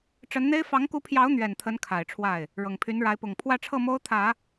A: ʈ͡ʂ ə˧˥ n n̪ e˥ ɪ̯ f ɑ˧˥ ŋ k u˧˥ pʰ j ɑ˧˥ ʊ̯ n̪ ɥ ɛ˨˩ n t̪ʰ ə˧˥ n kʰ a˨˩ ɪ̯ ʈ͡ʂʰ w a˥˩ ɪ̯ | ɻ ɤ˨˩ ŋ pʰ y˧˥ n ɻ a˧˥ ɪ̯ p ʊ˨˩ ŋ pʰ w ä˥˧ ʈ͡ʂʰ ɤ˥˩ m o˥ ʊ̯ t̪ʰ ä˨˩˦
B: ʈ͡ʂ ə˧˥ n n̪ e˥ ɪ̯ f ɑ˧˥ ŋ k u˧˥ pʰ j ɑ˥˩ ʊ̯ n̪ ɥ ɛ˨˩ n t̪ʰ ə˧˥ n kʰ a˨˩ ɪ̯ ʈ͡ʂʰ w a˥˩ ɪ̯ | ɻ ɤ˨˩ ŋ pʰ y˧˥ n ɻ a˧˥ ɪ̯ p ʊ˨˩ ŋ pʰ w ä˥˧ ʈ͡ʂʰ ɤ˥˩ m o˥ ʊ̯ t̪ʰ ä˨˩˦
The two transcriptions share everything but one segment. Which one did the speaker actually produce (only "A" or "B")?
A